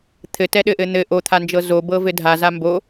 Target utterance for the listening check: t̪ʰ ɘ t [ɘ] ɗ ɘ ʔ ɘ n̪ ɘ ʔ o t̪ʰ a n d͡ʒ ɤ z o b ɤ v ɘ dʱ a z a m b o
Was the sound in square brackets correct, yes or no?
no